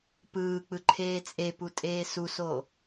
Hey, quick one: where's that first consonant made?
lips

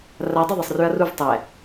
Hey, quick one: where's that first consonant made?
tongue tip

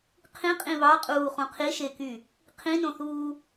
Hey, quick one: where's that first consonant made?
uvula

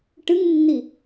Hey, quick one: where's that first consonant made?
retroflex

